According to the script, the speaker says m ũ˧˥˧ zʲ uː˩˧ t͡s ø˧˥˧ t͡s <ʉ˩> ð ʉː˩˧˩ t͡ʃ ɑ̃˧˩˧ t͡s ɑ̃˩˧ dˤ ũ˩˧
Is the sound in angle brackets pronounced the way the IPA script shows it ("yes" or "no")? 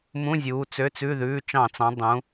no